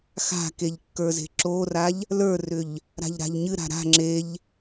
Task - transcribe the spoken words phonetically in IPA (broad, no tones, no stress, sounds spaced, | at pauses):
x a̤ k e ʎ kː ə˞ z e̤ ǁ o r a ʎ | l ə˞ r ʏ ʎ | ɾ a̤ ʎ ɾ a̤ ʎ ɲ ɨ ɾ a̤ ɾ a̤ ŋ͡ǁ e ʎ